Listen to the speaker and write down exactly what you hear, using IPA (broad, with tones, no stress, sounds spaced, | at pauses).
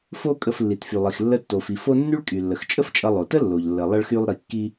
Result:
f o˥ kʼ ə˧ f lː i˩ t f y˩ lˠ i˩ x lː ə˧ tː o˩ f i˩ f o˧ nː y˥ ɭ kʼ y˩ lː ə˩ x t͡ʃʼ ə˥ f t͡ʃʼ ʌ˧ lˠ o˩ t ə˥ lː o˩ ʎ lː ə˩ lˠ ʌ˧ ɭ x y˧ lˠ ɾ i˩ kː i˧